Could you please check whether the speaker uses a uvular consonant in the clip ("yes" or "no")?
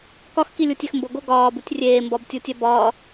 no